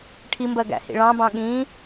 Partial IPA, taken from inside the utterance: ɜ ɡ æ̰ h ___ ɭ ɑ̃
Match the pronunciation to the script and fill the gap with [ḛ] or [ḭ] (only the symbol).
ḭ